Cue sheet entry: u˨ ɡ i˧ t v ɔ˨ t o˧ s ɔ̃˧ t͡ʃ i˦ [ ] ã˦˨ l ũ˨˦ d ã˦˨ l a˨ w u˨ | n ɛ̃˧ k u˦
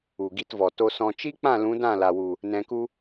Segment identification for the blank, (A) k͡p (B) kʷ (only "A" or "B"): A